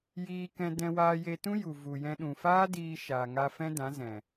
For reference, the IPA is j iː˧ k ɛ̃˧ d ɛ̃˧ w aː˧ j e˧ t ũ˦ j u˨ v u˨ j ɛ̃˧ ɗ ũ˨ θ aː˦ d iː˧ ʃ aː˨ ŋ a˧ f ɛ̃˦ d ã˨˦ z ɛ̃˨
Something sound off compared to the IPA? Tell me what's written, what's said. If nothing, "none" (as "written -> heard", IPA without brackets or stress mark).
θ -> f